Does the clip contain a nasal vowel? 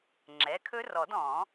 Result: yes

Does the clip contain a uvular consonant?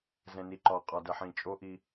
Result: yes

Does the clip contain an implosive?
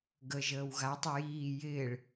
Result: no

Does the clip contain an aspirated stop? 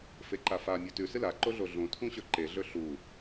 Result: yes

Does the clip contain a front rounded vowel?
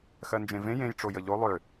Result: yes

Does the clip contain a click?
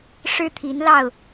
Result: no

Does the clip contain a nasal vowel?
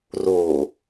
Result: no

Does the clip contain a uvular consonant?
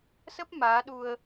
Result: no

